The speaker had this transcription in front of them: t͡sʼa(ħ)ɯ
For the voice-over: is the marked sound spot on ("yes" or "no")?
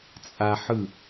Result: yes